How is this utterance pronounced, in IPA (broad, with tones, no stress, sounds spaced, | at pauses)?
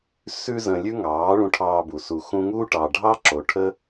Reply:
s ʉ˦ z ə̃˧ lʲ ʉ˦ ŋ ɑː˨˦ ɭ ũ˧ ʈʰ ɑː˧ b u˨ s u˨ x ũ˧ ŋ uː˦ ʈ ɑ˨ ɖʱ ɑ˦ ǁ o˨ ʈʰ ə˦